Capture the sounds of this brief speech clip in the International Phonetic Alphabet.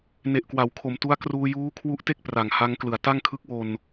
ne˨˩ʔkwa˩˦wkʰo˩˦mtu˦˥a̯ kruː˧juː˦˥kʰwu˦˥ʔte˥˩k̚ pra˩˦ŋha˦˥ŋklɯ˩˦a̯ ta˥˩ŋkʰɯ˦˥k̚wo˧n

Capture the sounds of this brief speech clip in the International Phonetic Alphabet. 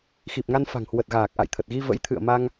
xi˨˩p̚ŋa˧n fa̤˨˩ŋhwə˨˩t̚ɣaː˨˩k̚ ʔa̰˧˨jt̪ʰə˨˩t̚ɣi˧ və̰˧˥j t̪ʰɨ̰˧˨ə̯ma˧ŋ

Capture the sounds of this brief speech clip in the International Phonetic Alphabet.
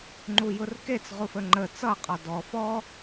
ŋ͡ǃujʊrket͡sʁu fəŋ͡ǃə t͡sʌqʼɒ dɔ fɔ

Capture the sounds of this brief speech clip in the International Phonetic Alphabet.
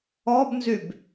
ɔbnzyb

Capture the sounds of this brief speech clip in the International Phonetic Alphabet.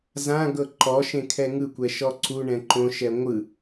zã ɡɤǃɔʃẽ kʰɛŋɯkʷɛ ʃɔǀuɳɛ̃ ǃõʃɛ ŋʷɯ

